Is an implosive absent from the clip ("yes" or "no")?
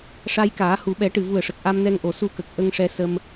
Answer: no